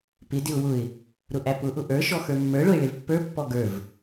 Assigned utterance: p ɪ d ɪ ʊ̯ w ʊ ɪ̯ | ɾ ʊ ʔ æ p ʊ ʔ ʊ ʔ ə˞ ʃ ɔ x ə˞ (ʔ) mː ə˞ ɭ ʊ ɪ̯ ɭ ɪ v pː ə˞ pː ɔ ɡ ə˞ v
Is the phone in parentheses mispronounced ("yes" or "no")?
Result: yes